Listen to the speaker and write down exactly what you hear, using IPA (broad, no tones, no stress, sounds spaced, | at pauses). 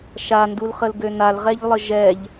ʃ a n d u l χ ə l ɡ ø n a l ʁ ɛ ʎ lˠ ə ʒ ɛ ʎ